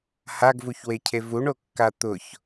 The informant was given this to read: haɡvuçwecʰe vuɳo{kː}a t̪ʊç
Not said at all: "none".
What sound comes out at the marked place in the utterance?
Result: kː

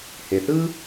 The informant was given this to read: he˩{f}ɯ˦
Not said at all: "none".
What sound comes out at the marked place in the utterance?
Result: θ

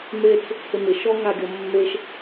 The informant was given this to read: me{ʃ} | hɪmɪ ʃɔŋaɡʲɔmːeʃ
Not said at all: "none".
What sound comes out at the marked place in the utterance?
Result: t͡s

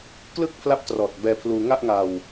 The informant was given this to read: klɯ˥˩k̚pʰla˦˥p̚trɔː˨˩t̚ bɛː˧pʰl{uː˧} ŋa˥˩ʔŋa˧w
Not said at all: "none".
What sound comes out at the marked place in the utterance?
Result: uː˧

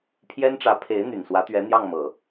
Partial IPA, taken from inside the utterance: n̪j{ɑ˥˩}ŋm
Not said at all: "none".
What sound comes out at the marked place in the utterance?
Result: ɑ˥˩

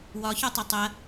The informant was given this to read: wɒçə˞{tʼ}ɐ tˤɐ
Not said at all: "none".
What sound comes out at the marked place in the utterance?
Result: tˤ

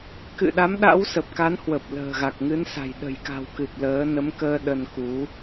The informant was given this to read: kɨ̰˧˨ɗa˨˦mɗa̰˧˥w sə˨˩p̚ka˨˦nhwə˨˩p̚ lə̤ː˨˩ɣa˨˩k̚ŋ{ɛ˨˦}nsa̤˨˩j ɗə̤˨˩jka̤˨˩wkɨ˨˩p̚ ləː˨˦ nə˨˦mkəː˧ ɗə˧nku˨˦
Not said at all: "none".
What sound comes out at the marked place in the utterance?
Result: ɨ˨˦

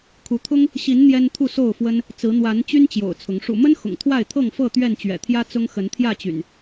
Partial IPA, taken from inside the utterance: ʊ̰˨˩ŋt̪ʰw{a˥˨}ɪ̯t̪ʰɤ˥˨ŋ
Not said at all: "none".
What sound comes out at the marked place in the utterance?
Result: a˥˨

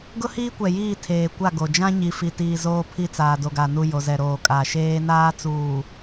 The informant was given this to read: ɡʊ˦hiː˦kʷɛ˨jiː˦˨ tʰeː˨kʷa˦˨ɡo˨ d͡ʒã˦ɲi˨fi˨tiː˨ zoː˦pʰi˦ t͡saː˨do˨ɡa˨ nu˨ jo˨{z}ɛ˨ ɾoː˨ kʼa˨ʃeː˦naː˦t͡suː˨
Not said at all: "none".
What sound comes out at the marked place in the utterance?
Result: z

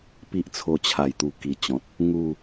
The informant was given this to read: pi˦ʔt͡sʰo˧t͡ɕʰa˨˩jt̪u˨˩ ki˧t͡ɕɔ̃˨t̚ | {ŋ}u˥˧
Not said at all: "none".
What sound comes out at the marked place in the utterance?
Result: ŋ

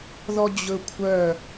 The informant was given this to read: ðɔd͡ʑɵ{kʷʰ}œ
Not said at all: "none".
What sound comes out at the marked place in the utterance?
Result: kʷʰ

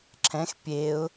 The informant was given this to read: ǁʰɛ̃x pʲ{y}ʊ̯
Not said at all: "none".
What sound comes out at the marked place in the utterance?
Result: e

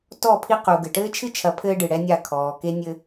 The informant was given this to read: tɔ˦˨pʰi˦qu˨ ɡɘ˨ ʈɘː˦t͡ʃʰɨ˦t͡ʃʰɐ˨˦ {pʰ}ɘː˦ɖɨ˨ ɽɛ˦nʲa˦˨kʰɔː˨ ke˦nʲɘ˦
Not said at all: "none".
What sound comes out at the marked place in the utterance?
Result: pʰ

